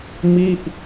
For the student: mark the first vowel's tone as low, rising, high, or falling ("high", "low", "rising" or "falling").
falling